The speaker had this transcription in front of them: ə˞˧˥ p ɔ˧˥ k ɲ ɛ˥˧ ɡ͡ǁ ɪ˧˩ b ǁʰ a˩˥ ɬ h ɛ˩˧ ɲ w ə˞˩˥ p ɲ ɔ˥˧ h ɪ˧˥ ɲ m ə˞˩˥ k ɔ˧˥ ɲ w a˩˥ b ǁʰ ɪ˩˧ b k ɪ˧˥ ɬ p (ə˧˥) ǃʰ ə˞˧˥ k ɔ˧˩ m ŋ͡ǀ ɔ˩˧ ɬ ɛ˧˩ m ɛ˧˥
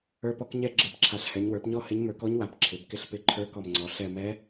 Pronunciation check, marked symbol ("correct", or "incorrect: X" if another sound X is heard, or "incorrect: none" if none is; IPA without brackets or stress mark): incorrect: ɪ˧˥